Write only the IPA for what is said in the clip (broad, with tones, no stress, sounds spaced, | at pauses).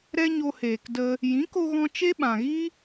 ɾ ɛ˦ ɲ o˧ h eː˨ k d ə˧ | j ĩ˨˦ k o˧ ɣ ɔ̃˧ t͡ʃ e˦ ɓ ã˨ ɣ i˦